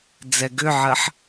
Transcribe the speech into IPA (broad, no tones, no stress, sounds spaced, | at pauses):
d͡z ɛ ɡ ʏ ʕ ɐ ħ